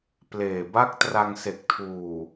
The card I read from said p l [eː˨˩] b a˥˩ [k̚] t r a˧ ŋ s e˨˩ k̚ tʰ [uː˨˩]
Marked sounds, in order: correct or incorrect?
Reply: correct, correct, correct

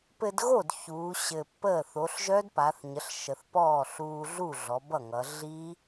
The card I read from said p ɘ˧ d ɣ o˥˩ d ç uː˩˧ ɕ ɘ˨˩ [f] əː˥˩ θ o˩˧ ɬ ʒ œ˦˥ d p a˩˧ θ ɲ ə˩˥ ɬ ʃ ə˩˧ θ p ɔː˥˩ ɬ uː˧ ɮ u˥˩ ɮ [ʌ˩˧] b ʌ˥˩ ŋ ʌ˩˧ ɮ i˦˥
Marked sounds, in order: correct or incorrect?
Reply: incorrect: pː, incorrect: ɔ˩˧

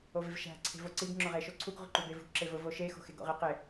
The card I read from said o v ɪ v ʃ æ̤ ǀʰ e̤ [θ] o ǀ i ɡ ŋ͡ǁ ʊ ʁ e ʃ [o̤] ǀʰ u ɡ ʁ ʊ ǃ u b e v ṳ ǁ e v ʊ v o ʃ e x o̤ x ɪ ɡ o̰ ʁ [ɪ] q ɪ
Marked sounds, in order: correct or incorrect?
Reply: incorrect: v, incorrect: o, correct

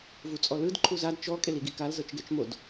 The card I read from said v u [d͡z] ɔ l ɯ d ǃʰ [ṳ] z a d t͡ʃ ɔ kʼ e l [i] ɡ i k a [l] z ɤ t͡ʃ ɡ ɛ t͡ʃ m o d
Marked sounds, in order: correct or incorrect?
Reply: incorrect: t͡sʼ, incorrect: u, correct, correct

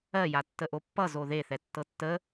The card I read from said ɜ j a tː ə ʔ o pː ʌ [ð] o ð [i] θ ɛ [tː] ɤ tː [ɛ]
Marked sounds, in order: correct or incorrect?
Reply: incorrect: z, incorrect: e, correct, incorrect: ə

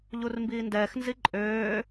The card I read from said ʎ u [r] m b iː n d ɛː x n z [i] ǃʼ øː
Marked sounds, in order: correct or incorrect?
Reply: correct, correct

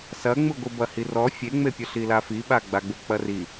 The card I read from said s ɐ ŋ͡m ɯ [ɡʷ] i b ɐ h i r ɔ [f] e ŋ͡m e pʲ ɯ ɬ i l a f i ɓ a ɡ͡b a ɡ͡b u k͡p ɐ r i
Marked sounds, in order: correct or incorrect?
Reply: correct, incorrect: fʲ

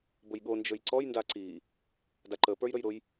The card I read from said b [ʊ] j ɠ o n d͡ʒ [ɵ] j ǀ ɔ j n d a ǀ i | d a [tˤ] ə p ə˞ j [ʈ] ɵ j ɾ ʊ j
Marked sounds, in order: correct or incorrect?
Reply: correct, correct, incorrect: ǃ, incorrect: ɾ

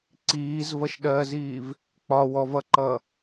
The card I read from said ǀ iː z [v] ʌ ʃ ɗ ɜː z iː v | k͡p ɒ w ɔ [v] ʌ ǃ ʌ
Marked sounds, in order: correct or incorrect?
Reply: correct, correct

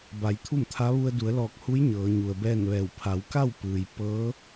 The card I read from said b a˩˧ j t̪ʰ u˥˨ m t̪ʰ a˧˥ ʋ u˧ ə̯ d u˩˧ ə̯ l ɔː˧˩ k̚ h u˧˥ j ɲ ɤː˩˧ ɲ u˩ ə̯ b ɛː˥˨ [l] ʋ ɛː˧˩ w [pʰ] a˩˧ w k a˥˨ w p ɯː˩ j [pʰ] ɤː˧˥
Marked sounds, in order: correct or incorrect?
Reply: incorrect: n, correct, incorrect: p

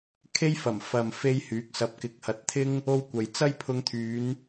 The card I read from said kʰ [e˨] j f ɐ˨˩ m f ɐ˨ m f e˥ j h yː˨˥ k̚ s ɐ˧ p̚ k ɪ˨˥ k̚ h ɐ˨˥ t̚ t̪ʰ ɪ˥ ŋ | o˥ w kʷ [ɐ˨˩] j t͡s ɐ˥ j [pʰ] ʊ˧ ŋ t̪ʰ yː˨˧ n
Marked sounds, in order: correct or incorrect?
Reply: incorrect: e˥, incorrect: ɐ˨, correct

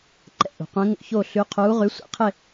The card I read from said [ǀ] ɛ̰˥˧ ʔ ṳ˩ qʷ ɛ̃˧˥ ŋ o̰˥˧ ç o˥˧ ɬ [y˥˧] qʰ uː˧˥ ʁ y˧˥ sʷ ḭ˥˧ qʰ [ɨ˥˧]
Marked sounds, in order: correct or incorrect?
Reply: incorrect: ǃ, incorrect: y˧˥, incorrect: ɪ˥˧

